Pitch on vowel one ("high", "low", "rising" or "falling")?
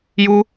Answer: high